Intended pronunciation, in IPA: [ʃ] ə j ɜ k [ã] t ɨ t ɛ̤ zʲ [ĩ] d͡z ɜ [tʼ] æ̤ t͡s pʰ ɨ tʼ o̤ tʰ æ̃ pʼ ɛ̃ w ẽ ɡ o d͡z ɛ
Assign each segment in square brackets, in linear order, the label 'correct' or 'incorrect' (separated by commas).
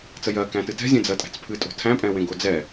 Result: incorrect, incorrect, incorrect, correct